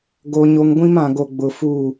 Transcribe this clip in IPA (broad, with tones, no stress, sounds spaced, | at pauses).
ɡ o˦ ɲ o˦ ŋ ɡʷ ĩ˦ m ã˨ ɡ o˨ ɡ͡b ʊ˨ f u˦˨